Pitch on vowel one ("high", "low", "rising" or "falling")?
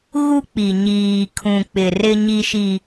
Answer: high